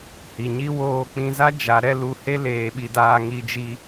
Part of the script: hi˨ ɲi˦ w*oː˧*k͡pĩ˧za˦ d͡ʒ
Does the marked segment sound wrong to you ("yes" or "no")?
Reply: no